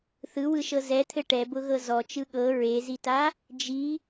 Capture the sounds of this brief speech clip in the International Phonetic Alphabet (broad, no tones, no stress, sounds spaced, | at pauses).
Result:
θ ɯ w ɯ ʃ ɤ z ɛ t̪ʰ ɘ ʈ ɛ b ʊ ɣ ɤ z ɔ t͡ʃ ɯ ɠ ɤ ɹ e z i t a | d͡ʒ i